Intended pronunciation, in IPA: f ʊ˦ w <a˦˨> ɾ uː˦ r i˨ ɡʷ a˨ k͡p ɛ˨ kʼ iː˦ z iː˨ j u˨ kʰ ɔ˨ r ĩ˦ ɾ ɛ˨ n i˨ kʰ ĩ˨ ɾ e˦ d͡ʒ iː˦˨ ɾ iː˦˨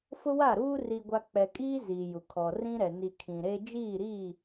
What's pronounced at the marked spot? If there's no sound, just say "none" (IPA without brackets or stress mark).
a˦˨